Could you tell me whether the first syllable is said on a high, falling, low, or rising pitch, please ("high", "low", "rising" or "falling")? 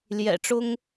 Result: low